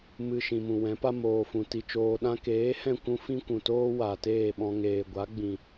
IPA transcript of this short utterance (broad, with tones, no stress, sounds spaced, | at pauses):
m ɨ˨ ʃ ĩ˨ m ũ˨ w ɛ̃˨˦ p a˦ m oː˨ f ũ˨ t i˨ t͡ʃ oː˨ ɗ ã˧ k eː˨˦ h ɛ̃˦˨ kʷ ũ˦ f ĩ˦ kʷ ũ˨ t oː˦ w a˨ t eː˦˨ ɓ ɔ̃˧ ŋ eː˨ ɡʷ a˨˦ ɡ͡b ĩ˨